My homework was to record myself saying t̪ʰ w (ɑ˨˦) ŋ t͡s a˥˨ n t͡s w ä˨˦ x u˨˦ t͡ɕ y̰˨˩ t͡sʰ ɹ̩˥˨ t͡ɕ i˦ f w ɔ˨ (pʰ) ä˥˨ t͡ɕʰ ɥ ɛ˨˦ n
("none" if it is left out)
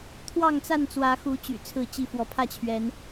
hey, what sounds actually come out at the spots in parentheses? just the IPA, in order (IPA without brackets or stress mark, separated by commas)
ɑ˥˨, pʰ